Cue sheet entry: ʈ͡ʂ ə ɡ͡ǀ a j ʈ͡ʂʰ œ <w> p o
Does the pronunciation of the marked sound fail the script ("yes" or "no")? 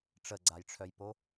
yes